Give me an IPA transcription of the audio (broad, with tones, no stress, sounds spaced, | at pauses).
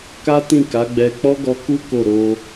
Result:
k a˦ t ĩ˦˨ k a˨˦ ɡ͡b ɛ˧ k͡p ɔ˦ ɡ ɔ˧ k u˦ k o˦˨ ɾ o˧